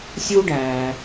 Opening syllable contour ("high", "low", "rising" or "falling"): high